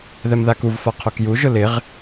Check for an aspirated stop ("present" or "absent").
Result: present